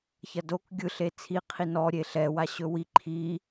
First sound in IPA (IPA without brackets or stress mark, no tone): ç